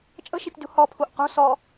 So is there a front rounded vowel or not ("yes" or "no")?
no